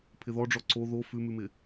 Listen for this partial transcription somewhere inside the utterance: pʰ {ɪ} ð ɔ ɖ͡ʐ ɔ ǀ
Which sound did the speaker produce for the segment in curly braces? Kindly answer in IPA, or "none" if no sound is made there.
ɪ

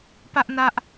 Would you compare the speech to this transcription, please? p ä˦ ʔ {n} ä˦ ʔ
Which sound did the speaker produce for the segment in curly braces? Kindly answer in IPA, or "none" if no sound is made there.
n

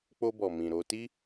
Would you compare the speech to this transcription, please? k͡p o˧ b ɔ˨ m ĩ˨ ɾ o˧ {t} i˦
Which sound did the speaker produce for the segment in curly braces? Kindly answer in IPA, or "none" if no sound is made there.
t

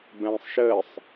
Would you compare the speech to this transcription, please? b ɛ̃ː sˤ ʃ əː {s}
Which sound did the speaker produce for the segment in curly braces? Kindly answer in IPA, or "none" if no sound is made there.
sˤ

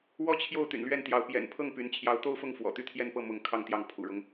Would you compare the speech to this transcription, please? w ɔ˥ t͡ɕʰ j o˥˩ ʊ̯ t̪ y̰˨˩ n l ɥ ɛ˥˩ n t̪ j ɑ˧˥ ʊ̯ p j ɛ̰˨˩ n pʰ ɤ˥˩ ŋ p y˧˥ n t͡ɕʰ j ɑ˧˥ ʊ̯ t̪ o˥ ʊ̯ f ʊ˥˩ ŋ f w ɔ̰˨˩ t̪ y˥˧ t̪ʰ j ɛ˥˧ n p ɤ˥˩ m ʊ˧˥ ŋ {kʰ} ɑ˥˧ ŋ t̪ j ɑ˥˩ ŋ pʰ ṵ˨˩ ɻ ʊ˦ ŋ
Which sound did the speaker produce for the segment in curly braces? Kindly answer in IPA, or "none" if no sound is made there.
kʰ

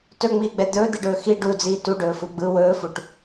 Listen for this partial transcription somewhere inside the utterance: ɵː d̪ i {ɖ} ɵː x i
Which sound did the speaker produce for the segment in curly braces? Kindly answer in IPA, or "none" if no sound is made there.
ɖ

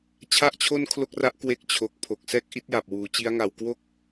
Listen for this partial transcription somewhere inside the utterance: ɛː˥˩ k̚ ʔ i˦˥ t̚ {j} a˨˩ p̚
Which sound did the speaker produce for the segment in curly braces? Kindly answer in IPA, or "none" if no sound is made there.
j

